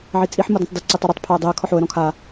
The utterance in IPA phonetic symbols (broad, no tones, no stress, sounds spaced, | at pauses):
ʕ i t͡sʼ i ħ m o d ɔ̃ tˤ d i ǀ i tˤ ɘ ɾ ɘ tˤ pʰ o ə̯ dˤ i ə̯ kʰ ɔ ħ o ə̯ ɾ ɔ̃ kʰ a